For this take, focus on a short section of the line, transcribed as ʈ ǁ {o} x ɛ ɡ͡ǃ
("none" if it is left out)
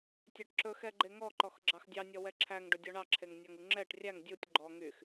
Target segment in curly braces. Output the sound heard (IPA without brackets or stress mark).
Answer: ɵ